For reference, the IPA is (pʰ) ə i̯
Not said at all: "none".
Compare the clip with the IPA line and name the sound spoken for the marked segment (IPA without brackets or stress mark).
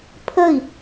pʰ